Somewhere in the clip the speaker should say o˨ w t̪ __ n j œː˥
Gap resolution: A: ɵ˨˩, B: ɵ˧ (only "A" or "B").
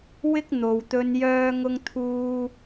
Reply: B